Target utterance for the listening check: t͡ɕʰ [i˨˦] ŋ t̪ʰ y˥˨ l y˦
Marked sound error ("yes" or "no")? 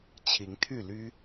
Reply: no